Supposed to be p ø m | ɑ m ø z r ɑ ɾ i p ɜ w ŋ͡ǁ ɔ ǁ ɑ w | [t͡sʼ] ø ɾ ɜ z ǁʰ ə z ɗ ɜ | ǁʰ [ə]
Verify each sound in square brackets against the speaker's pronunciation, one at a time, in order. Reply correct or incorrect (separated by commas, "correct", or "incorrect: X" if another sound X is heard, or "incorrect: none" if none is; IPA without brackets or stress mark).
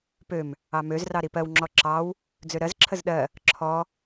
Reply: incorrect: d͡z, incorrect: ɔ